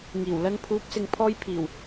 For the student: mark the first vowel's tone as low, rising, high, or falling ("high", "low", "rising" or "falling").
low